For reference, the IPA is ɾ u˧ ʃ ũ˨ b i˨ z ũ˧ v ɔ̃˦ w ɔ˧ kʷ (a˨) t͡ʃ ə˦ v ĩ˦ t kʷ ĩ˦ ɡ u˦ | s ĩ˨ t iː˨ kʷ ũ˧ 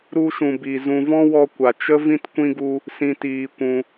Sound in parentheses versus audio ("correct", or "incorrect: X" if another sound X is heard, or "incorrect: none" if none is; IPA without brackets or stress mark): correct